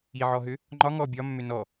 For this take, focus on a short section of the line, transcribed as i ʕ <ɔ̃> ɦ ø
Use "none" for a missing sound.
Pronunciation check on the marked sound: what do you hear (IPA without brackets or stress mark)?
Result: ɔ